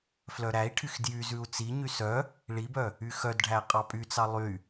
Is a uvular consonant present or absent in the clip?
present